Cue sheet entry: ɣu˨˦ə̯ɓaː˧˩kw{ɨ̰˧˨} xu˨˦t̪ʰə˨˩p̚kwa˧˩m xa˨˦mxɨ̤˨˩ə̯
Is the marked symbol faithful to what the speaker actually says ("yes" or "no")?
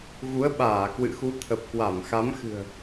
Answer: yes